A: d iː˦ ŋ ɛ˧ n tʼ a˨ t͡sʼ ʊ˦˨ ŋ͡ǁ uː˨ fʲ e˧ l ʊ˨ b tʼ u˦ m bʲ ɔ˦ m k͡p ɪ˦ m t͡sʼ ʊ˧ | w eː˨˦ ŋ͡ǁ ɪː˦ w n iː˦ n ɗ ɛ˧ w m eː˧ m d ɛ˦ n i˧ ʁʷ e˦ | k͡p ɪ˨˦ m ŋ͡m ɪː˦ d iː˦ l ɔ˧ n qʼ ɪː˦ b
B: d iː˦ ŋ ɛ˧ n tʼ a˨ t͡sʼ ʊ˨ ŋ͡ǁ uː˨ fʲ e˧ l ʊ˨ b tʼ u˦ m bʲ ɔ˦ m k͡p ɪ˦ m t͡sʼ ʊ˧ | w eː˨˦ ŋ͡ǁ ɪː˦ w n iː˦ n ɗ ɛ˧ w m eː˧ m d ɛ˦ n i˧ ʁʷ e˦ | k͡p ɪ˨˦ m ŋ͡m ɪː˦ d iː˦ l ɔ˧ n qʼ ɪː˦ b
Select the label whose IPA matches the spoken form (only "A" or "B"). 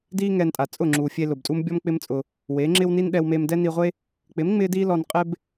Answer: A